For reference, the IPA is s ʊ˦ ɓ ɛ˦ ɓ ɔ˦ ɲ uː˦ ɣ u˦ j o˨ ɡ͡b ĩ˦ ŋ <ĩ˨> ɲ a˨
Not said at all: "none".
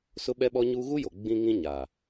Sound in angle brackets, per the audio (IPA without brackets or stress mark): ĩ˦